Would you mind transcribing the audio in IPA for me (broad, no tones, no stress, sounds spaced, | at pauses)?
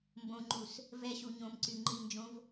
m b õ ŋ͡ǃ u s | v ɛ ɕ u ɲ õ m ǀ y ŋ͡ǃ i n d͡ʒ õ v